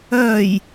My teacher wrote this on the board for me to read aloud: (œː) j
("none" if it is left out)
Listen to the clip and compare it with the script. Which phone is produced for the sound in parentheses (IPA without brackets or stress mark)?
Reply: œː